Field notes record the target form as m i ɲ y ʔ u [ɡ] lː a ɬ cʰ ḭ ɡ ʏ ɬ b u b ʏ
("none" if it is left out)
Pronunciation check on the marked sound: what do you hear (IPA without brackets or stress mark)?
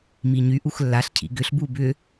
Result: x